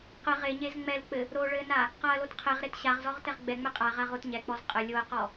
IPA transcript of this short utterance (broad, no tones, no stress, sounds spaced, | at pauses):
q ə ʁ e ɲ e z ŋ͡m ɛ l k͡p ɘ | ɾ o ɭ ɘ n a | q a ɐ̯ l o t qʰ ɛ ʁ ɾ e t ɕ a ʁ z ɔ ʁ t ɛ ʁ ɡ͡b ɛ ŋ͡m ɛ qʼ a ʁ a ʁ o t ɲ ɛ k͡p ɔ z qʼ ə lʲ o ɐ̯ q ɔ